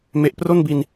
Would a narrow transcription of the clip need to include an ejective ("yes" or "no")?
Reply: no